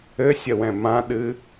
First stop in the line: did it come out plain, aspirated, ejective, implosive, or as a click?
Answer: implosive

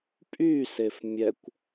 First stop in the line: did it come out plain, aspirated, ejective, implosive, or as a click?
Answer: ejective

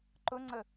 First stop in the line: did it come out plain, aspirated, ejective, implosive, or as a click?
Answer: click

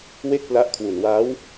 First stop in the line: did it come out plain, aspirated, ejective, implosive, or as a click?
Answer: plain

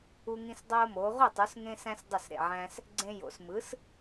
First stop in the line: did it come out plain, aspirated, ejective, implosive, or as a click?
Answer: plain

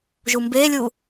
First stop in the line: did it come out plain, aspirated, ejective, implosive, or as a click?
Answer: plain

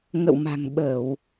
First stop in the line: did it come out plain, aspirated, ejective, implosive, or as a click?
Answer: implosive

